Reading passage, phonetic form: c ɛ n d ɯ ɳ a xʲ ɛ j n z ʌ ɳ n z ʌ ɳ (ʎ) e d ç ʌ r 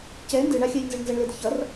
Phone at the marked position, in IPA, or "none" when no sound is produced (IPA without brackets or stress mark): l